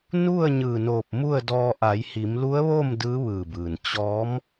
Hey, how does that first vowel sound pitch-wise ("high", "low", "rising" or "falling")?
falling